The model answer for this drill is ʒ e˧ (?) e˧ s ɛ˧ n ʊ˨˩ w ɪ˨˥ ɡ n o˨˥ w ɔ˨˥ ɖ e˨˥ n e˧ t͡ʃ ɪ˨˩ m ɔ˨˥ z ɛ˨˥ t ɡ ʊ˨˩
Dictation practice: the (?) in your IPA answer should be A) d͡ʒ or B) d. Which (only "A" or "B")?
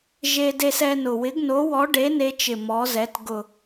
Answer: B